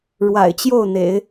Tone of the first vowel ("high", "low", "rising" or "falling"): low